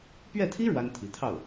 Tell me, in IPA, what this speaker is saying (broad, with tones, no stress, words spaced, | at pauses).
pɥɛ˥˩t̪ʰi˥ ɻwa˥nt̪ʰi˧˥t̪ʰɑ˥˩ʊ̯